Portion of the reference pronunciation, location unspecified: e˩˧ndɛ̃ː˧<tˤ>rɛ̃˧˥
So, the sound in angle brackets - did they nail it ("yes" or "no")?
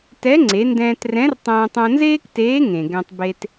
no